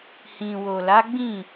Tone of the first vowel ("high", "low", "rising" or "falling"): low